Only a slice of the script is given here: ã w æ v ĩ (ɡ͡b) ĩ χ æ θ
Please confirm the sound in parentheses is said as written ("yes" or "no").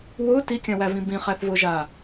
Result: no